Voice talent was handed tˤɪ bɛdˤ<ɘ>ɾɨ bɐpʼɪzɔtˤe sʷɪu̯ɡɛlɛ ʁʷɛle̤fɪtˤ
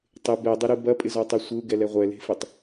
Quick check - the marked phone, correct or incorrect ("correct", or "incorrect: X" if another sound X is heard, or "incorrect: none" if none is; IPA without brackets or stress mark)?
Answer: correct